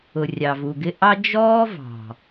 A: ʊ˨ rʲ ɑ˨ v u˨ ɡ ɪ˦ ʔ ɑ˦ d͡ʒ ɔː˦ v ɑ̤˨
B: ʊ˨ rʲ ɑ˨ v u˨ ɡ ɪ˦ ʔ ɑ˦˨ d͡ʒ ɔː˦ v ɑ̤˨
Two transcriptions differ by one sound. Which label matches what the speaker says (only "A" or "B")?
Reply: A